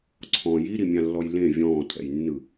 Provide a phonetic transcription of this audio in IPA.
ǀʰ ɔ̃ j i ɾ i mʲ ã lː ɔ j l ẽ vʲ ɔ̃ː tʼ ɛ̰ j nː ɯ

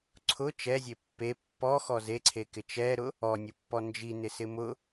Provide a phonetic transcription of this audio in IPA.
ǀʰ ʊ t͡ʃ ɛ zʲ e pː e pː ɔ x ɔ z e ǀʰ e k ɪ t͡ʃ ɛ ɾ ʊ | ɔ nʲ ʊ pː ɔ n d͡ʒ i n ɪ s ɪ m ʊ

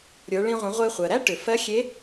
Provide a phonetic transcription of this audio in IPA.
ɾʲ ə˞˩˧ ɭ ĩ˧ ʁʷ ə̃˩˧ ʁʷ e˧ χʷ ɜ˩ ɾ æ˥ ʈ ʏ˩ f ɜ˧˥ xʲ e˧˥

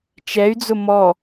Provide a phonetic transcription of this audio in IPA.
t͡ʃ ɛ y̯ d͡z ʊ m ɔ

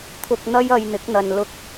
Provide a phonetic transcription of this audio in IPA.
t̪ʰ ʊ˧ k̚ n̪ ɐ˥ j ɐ˧ j n̪ ɪ˨˥ k̚ n̪ ɐ˨ n l ʊ˧ k̚

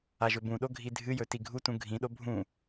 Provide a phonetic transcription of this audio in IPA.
a ʒ ɵ b ũ ɗ o ɡʱ i dʱ ɨ j ɵ t i ɡʱ u t ũ ɡʱ ĩ ɗ o bʱ ũ

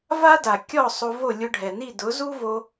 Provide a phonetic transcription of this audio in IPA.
v a˥ d a˩ kʲ ɔ˥˩ sˤ o˧ v o˥˩ lʲ ʊ˧ ɖʱ ɛ˩ n i˥˩ d ʊ˩˥ z u˥ v o˧

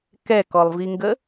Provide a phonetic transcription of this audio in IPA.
k ɛ k ɔ lˠ v i ŋ ɡ ə

